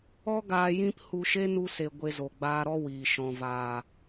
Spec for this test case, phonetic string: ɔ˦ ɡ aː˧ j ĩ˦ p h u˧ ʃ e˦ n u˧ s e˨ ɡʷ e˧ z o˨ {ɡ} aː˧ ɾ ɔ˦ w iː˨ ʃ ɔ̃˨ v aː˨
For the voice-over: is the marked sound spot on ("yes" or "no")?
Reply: no